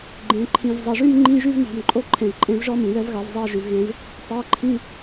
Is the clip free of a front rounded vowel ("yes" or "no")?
no